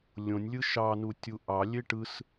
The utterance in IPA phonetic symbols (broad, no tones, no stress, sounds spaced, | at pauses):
lʲ õ nʲ lʲ ɯ ʃ ɑ n u tʲ u ʔ ɑ lʲ e ʈ ɯ s